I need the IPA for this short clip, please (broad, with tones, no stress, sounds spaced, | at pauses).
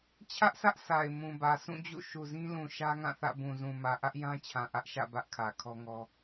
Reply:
t͡ɕʰ ä˦ ʔ sʰ ä˦ ʔ s a˨ ɪ̯ m ũ˨ b ä˨ sʰ ũ˦˨ d͡ʑ ṵ˦˨ ʃ u˨ z ĩ˦ l ũ˨ ʃ ä˦ ŋ ã˦˨ θ ä̰˦˨ b ũ˨ z ũ˨ m ä˨ ʔ ä˦ ʔ j ã˦ t͡ɕʰ ã˨ ʔ ä˦ ʔ ʃ ä̰˦˨ b ä˦ ʔ kʰ ä˨ kʰ ɔ˦ ŋ ɔ˦